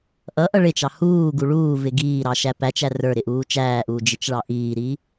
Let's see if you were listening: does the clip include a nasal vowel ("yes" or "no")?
no